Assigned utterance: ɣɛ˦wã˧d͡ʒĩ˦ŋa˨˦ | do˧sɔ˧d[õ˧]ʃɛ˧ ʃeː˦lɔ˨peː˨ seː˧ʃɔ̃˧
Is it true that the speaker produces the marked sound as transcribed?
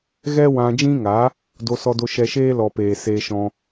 no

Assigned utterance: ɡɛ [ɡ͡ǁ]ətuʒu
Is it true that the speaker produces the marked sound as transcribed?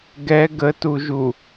no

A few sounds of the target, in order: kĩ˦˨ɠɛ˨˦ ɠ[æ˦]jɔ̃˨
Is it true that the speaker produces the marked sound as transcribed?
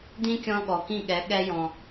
no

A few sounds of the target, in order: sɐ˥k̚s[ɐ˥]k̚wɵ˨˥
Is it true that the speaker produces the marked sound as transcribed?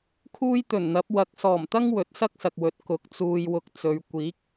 no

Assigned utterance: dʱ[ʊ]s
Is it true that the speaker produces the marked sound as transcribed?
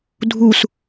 no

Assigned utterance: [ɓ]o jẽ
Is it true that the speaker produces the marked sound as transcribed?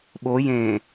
yes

